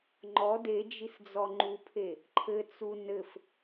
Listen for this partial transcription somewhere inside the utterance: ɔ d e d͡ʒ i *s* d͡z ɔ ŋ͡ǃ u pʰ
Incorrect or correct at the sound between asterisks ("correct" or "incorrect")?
correct